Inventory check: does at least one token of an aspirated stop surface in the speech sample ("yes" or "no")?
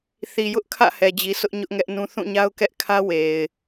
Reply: yes